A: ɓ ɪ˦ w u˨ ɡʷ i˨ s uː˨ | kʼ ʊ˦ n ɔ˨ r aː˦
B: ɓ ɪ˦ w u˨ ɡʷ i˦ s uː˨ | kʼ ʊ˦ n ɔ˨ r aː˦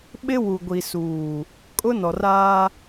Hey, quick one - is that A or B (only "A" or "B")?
A